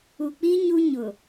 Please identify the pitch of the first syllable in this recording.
low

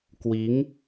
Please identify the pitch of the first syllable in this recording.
rising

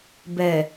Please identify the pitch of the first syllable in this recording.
low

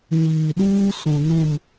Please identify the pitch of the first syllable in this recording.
low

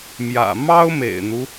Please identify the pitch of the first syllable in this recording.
low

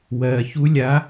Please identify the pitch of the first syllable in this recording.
low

